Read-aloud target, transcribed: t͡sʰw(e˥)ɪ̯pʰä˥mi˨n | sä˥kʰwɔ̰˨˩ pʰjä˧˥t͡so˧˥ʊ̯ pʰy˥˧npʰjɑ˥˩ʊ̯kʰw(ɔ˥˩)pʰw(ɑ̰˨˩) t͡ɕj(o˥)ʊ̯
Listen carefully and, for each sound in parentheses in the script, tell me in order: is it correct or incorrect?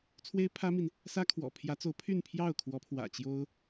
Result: correct, incorrect, incorrect, correct

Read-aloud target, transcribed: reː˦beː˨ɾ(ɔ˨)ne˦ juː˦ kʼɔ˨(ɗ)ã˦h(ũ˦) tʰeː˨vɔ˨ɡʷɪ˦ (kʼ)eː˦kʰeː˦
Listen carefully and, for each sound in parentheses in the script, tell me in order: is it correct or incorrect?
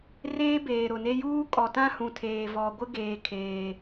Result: incorrect, incorrect, incorrect, incorrect

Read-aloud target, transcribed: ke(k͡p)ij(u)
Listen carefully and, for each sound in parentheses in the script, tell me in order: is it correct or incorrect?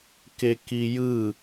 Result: incorrect, incorrect

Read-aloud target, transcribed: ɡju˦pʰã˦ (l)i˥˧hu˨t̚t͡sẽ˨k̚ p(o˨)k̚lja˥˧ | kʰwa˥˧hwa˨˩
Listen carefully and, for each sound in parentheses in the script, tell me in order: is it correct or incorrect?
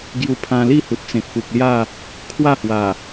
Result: correct, incorrect

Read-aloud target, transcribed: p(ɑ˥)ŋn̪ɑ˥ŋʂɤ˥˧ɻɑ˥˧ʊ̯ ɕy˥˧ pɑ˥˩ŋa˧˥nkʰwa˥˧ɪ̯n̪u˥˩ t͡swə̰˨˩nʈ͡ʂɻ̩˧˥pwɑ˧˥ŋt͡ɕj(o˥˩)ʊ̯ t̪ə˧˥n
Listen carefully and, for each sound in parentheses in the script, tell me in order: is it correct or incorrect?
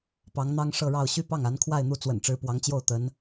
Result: incorrect, correct

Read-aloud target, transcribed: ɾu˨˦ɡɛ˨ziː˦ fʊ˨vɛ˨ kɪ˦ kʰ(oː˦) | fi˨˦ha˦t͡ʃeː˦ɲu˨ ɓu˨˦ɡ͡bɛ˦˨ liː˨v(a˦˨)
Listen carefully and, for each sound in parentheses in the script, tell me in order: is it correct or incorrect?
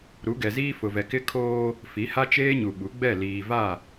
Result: correct, correct

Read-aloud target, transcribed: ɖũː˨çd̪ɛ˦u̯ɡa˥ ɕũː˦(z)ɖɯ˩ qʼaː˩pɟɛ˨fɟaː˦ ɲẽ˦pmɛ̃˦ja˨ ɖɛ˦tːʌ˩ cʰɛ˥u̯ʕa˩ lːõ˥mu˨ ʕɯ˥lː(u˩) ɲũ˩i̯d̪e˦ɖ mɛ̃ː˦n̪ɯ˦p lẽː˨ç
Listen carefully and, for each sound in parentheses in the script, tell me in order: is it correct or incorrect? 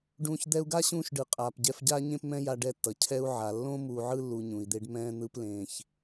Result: incorrect, incorrect

